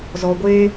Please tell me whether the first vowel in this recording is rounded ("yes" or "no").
yes